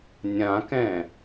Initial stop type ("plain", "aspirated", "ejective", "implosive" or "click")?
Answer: plain